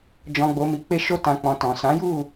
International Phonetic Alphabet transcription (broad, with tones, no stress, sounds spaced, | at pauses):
d͡ʒ ɔ̃˧ ɡ͡b o˧ m i˧ k͡p e˦ ʃ o˦ t ã˧ k͡p ɔ̃˧ t ɔ̃˨ s ã˨˦ j u˦˨